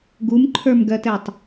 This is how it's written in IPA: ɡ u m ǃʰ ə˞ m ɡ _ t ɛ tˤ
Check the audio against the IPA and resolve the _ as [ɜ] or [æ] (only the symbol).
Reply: ɜ